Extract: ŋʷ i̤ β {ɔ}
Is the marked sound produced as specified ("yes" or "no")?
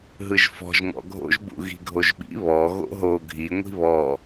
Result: yes